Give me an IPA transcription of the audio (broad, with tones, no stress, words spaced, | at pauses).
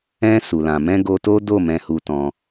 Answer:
ɛ̃˧ su˨lã˨ mɛ̃˧ ɡo˧to˦do˦˨ mɛ̃˧hu˧ tɔ̃˧